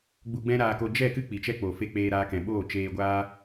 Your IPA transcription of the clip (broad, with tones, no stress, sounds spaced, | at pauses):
ɡ͡b u˧ ɡ͡b ɛ̃˦ ɾ aː˧ k o˧ d͡ʒ ɛ˦˨ k ɨ˦ k͡p i˨ t͡ʃ ɛ˦ k͡p o˨ f e˦ k͡p eː˧ ɾ aː˧ k ɛ̃˨ ɓ oː˦˨ t͡ʃ eː˧ ɡʷ aː˦